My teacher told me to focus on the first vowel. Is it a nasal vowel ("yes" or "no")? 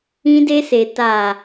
yes